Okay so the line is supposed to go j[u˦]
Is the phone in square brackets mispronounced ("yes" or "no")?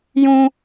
yes